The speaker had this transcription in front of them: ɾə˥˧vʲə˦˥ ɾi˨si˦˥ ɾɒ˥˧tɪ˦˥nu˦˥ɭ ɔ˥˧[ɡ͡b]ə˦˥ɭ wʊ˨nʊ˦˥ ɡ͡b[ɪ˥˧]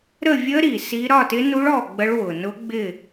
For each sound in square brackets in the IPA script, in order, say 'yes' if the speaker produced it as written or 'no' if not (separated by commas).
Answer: yes, yes